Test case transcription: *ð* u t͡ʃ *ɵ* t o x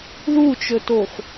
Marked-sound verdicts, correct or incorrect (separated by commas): correct, correct